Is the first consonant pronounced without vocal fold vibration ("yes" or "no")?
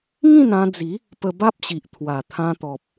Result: no